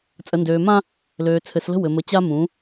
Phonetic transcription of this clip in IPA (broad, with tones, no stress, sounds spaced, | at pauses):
t͡sʼ ə˨ n d øː˨ m ã˦ | l øː˨ t͡sʰ ɘ˨ s l ə̤˦ w ɘ˨ m ə˨˦ t͡ɕ a˦ m ũ˨˦